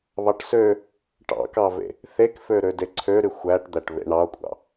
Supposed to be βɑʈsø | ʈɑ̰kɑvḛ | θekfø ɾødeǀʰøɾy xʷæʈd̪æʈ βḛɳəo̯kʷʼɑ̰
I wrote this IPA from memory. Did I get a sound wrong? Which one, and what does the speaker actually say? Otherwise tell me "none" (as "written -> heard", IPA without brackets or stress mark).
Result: ə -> ɑ